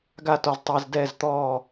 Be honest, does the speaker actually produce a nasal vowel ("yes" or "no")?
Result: no